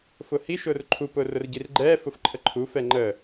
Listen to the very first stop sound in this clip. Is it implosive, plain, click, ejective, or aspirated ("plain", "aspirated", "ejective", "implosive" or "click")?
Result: click